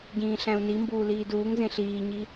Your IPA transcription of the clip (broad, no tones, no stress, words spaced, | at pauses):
ɟĩːɬæ̃u̯nimbuː liːduːŋzẽ ɬiːɲi